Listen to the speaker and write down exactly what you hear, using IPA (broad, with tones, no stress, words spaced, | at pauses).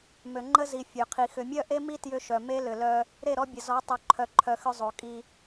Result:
mø˨ŋ͡ǃə˦zi˨ fʲø˨qʰi˨ xʏ˨mʲœ˦ʔe˦mi˦ tjʏ˦ʃœ˨ me˦lʏ˨ lœ˦ | ɾe˦˨ɾɔ˦bʲə˨zɔ˨˦ tˤo˨ǃʰœ˨ǃʰœ˨ xʏ˦zˤo˨kʼi˦